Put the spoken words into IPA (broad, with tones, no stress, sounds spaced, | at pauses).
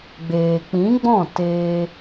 ɡ͡b eː˨ k͡p ĩ˨˦ ɡ͡b ɔ̃˦˨ t eː˧